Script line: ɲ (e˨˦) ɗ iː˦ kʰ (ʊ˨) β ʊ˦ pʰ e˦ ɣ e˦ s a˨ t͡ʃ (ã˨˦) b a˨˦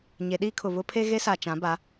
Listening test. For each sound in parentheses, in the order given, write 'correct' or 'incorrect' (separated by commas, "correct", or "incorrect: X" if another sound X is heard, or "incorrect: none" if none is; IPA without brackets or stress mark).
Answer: correct, correct, correct